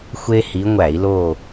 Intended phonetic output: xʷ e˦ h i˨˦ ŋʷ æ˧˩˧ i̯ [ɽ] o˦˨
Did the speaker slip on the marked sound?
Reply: yes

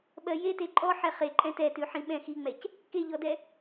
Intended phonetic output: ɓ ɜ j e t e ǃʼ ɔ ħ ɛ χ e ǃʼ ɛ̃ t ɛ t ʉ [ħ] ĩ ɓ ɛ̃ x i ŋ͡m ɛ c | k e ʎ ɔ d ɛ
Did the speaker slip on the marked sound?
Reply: no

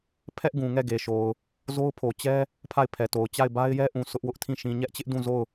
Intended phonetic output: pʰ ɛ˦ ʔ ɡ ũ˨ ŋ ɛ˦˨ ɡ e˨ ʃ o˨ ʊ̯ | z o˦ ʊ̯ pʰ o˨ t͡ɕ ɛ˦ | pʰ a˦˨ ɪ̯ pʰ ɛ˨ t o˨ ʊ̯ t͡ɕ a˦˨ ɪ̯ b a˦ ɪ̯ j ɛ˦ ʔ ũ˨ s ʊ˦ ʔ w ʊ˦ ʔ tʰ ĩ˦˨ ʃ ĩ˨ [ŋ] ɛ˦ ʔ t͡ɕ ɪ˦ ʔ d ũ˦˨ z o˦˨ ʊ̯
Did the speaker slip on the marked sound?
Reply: yes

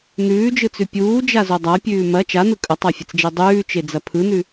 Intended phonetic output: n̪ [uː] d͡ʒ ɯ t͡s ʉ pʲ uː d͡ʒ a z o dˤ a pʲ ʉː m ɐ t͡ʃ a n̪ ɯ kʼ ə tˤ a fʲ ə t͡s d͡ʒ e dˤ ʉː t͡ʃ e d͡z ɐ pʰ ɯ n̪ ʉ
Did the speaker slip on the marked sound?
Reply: yes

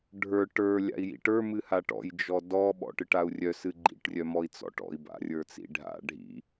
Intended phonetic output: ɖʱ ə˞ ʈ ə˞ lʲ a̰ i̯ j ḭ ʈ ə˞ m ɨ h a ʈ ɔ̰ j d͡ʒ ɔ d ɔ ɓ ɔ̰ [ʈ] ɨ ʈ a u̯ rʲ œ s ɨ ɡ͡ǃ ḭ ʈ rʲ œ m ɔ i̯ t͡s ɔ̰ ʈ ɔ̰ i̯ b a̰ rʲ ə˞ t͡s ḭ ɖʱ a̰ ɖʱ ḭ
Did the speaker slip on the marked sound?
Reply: no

